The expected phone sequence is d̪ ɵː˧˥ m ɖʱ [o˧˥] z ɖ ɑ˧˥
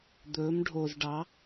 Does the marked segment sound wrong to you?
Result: yes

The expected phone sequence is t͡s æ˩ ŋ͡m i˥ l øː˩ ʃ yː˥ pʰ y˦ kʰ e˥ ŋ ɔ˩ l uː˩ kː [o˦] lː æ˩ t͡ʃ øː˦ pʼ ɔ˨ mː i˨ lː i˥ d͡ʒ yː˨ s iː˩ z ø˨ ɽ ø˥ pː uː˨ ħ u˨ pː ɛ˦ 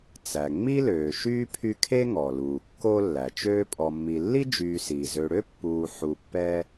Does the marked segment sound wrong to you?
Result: no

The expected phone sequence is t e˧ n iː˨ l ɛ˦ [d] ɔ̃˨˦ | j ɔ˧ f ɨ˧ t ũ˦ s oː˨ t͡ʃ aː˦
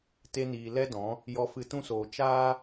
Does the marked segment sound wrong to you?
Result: no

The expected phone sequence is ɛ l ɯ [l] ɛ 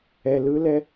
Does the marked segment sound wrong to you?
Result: no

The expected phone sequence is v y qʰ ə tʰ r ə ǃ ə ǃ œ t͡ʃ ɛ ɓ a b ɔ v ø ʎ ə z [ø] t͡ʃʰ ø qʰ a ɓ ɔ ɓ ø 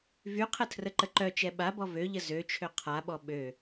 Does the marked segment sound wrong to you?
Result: no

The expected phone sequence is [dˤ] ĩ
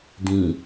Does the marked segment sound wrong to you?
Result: yes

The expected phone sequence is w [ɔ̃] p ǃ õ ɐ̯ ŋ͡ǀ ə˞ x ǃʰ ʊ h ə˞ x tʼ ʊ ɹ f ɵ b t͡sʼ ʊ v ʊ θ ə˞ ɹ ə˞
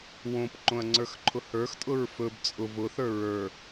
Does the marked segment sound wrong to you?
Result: yes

